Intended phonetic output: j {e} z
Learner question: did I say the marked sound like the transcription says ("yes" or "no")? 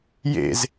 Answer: no